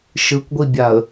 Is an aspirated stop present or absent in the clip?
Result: absent